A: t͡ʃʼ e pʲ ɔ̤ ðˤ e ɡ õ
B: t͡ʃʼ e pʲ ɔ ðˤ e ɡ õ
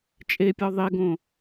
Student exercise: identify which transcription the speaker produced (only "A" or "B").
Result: B